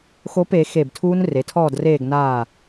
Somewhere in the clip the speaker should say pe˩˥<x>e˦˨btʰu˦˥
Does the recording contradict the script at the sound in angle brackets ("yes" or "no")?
no